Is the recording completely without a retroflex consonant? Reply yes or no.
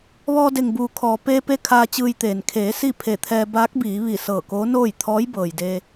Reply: yes